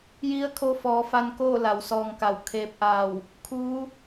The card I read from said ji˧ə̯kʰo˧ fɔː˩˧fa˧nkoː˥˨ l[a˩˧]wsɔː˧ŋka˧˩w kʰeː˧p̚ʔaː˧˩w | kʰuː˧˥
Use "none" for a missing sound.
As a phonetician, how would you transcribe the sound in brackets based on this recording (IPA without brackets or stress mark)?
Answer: a˩˧